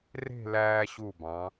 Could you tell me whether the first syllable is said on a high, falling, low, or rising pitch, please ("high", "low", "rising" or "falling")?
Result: falling